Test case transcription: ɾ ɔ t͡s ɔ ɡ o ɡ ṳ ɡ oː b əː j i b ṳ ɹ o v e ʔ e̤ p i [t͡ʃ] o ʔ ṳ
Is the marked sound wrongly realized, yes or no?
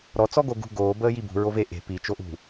no